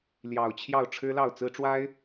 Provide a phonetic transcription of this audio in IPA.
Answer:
ljɑ˨˩ʊ̯t͡ɕʰjɑ˥˨ʊ̯ ʈ͡ʂʰɻ̩˦lɑ˥˨ʊ̯t͡sɹ̩˦ ʈ͡ʂwa˦ɪ̯

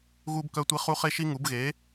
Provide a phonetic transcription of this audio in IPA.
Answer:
ɣu˥bkœ˥tʷi˥χu˥ χe˥ʃi˥ŋu˨˥b ɣe˨˥

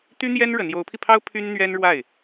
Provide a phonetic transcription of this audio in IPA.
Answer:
t̪y˥n̪jɛ˥n ɻə˧˥n jo˧˥ʊ̯pʰi˧pʰɑ˥ʊ̯ pʰy˥nn̪ɥɛ˥n ɻwa˥˩ɪ̯

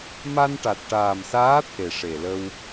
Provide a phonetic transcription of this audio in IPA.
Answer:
ma˧nʈa˨˩t̚ʈaː˨˩msaː˧˥ t̪ʰe˨˩ʂe˨˩lə˧w

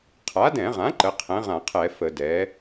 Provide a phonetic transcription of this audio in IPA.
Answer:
qʰa˩˥dɛ̃˧˩˧ʁã˩˥ ǃə˩˥qʰɛ̃˩˥ʁã˧˩˧qʰɛ˧˩˧ fə˧˩˧dɛ˩˥

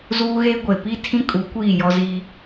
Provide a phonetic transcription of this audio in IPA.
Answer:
zuː˦ɣeː˦ ɡʷe˨ pi˦tʰĩ˦kʼu˨˦ kʷiː˦˨jɔ˦ziː˦

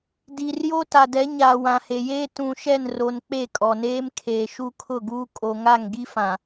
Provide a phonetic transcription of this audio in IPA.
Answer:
di˨rjo˦ ta˨dɛ˨˦ɲaː˨ wã˨he˨jeː˦ tũ˨ʃɛ˦˨nro˨n k͡pe˦˨kʼɔ˨neː˦m kʰeː˨ʃu˦kʰʊ˦˨ɡuː˦ kʼo˨ŋa˦˨ŋɡi˦fã˨

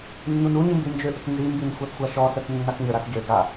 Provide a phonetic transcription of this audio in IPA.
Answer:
nːunuɲi mbind͡ʒøʔək nzimbin xʷaθxʷaʃɔsəθ nːakɲəɾas ɟø ɡa

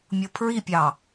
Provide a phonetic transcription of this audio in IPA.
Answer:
mʲopʰɹipʲɑ

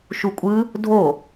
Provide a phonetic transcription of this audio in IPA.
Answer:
ʃukʷʼɯ | dʱo

